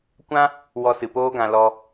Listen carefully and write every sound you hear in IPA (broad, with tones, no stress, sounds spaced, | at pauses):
kʷ ã˦ | w ɔ˧ s ɨ˨ p oː˦ ɡ ã˧ l ɔ˧